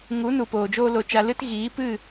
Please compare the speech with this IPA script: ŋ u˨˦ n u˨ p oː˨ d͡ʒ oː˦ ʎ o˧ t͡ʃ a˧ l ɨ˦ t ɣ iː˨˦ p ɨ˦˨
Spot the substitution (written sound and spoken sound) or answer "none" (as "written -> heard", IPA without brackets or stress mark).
ʎ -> l